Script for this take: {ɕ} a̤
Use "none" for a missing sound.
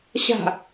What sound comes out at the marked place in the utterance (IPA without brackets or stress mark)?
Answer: ɕ